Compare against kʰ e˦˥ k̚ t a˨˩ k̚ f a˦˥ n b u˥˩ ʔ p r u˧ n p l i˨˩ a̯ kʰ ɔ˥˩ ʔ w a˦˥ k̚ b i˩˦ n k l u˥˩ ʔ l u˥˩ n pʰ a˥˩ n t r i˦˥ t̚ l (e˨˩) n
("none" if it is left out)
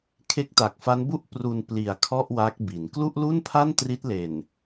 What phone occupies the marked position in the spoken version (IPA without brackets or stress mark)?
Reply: e˨˩